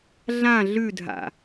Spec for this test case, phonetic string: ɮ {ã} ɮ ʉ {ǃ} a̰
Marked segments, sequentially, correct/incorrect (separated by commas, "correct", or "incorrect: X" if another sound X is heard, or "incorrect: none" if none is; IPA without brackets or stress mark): correct, incorrect: dʱ